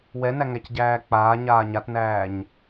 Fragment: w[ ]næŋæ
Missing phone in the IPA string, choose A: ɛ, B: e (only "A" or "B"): A